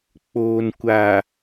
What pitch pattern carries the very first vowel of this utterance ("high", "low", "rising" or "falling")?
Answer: low